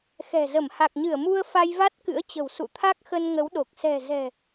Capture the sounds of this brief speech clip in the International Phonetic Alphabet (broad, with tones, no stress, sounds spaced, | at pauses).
x ɛ̤˨˩ z ə˧˩ m h a˨˩ k̚ ɲ ɨ˧˩ ə̯ m u˧ ə̯ f a˧ j v a˦˥ t̚ k ɨ̰˧˥ ə̯ t͡ɕ ə̤˨˩ w s ṵ˧˨ t̪ʰ a˦˥ k̚ x ə˧ n ŋ ə˨˦ w ɗ o˨˩ k̚ s ɛ̤˨˩ z ɛ̤˨˩